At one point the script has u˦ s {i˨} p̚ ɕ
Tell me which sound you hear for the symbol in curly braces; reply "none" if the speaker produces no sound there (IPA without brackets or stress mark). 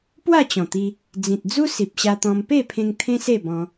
i˨